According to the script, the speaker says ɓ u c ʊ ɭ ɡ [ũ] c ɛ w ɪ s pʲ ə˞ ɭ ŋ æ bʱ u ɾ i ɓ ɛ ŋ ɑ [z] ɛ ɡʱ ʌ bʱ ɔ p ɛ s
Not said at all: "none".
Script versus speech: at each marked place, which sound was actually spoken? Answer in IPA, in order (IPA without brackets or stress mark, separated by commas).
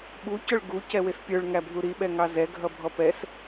u, z